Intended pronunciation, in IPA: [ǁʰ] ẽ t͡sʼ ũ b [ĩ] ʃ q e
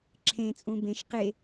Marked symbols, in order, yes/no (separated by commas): yes, no